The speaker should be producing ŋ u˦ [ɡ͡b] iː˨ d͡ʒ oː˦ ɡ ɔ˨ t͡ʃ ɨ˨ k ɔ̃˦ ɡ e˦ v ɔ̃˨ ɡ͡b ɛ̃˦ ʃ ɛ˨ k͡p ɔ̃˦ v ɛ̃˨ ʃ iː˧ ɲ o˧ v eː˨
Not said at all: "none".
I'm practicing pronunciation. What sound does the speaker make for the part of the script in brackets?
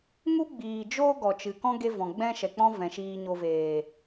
ɡ͡b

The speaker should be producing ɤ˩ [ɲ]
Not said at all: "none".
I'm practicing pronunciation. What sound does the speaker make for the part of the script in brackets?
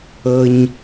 ɲ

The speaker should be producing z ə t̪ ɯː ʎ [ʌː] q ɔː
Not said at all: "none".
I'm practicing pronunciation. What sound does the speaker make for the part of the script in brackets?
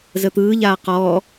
aː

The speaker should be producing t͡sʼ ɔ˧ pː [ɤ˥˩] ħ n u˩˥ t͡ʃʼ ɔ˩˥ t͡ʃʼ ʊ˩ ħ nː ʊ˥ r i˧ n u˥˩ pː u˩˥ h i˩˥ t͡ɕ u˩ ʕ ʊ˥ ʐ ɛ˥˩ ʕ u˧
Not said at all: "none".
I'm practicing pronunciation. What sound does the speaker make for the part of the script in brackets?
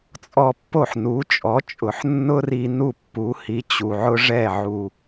o˥˩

